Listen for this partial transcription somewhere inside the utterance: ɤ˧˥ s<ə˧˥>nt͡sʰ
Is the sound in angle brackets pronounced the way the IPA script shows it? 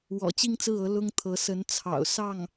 yes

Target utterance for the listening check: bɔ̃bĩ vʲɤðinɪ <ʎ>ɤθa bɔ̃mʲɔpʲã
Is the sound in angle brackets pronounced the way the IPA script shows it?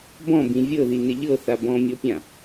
yes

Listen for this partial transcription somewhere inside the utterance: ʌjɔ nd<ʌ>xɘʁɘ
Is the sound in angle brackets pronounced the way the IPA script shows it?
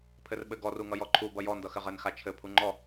yes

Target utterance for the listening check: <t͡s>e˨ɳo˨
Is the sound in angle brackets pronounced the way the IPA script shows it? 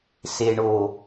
no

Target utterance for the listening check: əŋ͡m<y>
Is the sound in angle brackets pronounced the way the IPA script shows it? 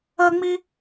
no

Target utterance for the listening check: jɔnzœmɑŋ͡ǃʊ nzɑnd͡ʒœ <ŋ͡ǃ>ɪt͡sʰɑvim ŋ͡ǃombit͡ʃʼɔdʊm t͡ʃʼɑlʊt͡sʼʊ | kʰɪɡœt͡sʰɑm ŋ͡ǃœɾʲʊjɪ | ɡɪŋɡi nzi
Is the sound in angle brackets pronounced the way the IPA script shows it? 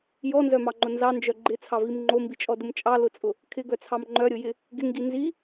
no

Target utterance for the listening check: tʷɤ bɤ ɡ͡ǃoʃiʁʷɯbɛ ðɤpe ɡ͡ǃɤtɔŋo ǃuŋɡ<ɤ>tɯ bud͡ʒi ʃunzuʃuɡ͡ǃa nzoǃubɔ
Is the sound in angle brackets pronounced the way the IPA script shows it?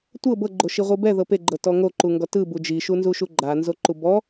no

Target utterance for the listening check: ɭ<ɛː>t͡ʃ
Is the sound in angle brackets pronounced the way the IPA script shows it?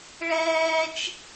yes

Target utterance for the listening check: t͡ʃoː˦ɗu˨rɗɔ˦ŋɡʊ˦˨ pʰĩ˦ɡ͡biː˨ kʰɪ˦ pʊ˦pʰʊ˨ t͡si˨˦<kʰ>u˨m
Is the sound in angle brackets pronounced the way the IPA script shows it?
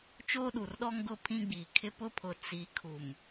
yes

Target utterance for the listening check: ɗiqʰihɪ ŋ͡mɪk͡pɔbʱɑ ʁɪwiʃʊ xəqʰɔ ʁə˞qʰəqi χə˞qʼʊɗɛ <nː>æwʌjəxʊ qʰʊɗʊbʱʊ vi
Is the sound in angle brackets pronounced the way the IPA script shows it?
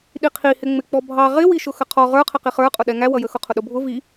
no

